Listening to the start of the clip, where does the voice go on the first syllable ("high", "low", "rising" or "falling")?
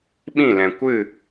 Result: falling